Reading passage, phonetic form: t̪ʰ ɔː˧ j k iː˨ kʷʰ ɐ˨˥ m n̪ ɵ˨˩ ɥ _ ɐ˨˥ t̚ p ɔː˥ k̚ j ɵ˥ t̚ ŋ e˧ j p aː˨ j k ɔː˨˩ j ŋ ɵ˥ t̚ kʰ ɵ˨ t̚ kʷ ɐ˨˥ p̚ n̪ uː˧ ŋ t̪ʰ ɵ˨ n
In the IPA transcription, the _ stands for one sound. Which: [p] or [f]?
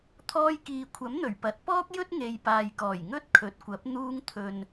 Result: p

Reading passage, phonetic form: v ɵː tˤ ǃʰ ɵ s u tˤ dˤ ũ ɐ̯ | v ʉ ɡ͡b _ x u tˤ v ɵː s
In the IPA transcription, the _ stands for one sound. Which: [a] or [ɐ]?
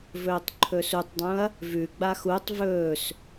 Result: a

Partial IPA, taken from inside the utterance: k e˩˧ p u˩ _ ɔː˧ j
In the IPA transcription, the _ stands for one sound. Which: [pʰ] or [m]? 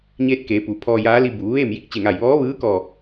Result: pʰ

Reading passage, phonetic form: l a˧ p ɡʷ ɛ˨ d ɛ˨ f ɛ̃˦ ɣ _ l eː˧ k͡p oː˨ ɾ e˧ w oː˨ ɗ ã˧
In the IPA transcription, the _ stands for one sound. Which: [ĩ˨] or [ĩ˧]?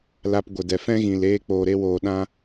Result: ĩ˨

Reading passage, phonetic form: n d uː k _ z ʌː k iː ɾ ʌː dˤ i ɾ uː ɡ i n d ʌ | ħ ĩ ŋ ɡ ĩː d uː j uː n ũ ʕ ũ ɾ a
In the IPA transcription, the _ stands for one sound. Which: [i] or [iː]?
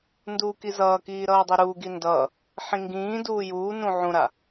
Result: i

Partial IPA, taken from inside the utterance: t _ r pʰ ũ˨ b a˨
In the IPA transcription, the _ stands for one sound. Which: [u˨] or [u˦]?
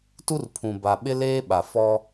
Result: u˦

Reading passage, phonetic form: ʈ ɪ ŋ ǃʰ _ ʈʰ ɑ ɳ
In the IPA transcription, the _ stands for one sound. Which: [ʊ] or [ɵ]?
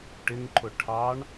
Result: ʊ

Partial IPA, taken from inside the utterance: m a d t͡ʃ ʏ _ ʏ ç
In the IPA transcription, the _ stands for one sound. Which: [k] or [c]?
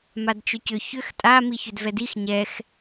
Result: c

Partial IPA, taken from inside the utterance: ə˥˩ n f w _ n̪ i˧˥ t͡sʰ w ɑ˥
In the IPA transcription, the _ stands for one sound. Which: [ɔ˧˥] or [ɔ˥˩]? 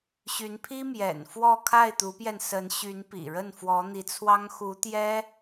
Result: ɔ˧˥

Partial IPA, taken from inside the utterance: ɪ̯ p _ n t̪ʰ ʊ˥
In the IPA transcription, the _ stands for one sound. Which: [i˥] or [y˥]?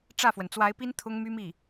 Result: i˥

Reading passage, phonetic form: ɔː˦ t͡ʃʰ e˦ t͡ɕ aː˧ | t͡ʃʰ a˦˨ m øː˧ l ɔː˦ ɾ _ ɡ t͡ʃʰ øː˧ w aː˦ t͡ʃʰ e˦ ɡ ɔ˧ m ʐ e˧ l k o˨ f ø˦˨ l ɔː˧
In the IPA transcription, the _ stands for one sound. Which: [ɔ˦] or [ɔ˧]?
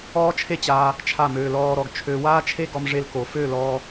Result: ɔ˧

